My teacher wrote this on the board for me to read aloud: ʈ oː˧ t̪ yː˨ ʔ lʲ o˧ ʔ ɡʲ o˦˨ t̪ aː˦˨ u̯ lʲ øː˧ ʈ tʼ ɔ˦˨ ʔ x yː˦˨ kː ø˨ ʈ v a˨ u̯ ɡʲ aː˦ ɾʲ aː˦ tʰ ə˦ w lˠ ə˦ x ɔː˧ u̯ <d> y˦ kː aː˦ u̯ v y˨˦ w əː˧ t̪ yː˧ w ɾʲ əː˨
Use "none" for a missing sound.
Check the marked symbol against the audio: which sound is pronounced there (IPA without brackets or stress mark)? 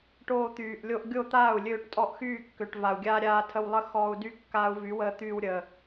d